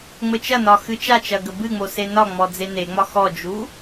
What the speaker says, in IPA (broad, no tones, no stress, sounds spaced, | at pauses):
ŋ͡m ɘ t͡ʃ ɐ n ɒ x ɨ t͡ʃ a t͡ʃ ɐ ɡ ə b ɨ ŋ͡m o s e n ɒ ŋ͡m ɔ d͡z e n e ŋ͡m ɒ x ɔ d͡ʒ u